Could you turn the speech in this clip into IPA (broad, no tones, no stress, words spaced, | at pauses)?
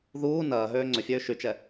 ðuː nɐːɦøː ŋ͡ǀʏfʲøː ʃyt͡ʃɛ